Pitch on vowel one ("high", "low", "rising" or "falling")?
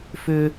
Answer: high